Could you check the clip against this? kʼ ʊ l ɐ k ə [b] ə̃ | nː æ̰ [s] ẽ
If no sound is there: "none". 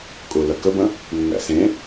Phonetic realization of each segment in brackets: b, s

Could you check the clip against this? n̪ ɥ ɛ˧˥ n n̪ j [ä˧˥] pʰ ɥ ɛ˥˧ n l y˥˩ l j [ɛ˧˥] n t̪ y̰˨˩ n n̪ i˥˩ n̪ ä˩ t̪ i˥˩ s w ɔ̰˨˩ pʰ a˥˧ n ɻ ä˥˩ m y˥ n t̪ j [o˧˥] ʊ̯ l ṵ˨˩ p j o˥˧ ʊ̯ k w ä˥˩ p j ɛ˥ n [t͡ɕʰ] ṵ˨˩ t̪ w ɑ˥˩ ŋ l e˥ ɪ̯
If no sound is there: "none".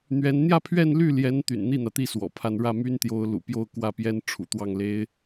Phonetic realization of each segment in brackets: ä˥˧, ɛ˧˥, o˧˥, ʈ͡ʂʰ

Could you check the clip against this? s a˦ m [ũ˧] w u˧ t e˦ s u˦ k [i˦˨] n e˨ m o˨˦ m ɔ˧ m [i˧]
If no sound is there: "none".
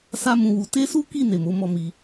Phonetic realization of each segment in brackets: ũ˧, i˦˨, i˧

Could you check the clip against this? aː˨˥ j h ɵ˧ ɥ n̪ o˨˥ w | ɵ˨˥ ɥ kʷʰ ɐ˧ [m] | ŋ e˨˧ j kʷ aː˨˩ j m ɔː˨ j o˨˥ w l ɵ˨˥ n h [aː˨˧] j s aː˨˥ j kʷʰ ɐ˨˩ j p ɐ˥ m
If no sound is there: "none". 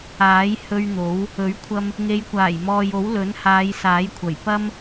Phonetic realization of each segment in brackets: m, aː˨˧

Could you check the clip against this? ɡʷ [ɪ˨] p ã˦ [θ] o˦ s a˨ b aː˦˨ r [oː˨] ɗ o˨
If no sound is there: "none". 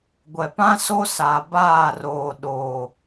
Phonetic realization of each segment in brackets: ɛ˨, s, oː˨

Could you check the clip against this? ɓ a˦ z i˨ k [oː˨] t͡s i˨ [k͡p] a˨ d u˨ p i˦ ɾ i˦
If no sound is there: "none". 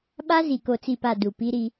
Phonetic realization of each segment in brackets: o˨, p

